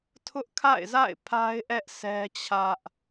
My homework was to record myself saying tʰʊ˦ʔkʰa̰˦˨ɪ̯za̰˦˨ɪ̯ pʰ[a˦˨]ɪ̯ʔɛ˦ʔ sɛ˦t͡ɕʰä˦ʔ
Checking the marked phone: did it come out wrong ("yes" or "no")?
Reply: yes